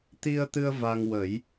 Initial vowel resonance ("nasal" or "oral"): oral